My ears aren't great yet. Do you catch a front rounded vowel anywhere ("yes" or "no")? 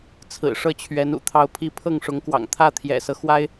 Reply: no